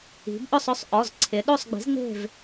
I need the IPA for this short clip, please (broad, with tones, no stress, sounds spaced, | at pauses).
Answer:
i̤˩˧ b ʔ ʊ˥˨ sˤ ʊ˥˨ sˤ ʔ ɔ˩˧˩ z ǀʰ ɪ˩˧ ɗ o˥˨ sˤ ɡ͡b i̤˩˥ z ŋ͡m e̤˥˨ v